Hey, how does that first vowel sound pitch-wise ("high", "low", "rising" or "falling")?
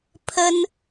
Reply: high